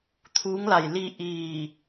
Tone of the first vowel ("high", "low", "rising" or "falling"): rising